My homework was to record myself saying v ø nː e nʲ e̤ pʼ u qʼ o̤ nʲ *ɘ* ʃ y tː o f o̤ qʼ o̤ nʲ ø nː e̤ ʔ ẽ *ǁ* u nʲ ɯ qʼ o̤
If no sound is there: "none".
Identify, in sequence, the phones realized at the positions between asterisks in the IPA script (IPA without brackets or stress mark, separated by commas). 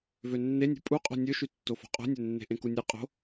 ø, k